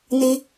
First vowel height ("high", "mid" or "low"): high